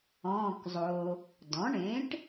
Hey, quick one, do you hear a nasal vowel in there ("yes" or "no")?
yes